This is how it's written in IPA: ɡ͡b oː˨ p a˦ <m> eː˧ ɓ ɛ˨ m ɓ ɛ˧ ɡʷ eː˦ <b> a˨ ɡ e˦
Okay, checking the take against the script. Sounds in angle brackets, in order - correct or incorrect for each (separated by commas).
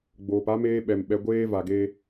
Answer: correct, incorrect